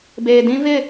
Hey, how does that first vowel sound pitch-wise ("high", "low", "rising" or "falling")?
low